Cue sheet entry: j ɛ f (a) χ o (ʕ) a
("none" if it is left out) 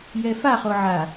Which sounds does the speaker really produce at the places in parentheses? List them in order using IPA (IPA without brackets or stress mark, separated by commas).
a, ʕ